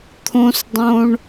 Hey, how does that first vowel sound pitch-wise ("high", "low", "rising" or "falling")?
high